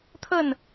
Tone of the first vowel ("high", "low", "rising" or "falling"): falling